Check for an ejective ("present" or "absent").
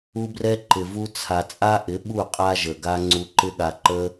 present